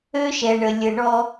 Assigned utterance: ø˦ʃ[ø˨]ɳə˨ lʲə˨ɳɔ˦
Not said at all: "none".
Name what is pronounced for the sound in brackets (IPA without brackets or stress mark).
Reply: ɛ˨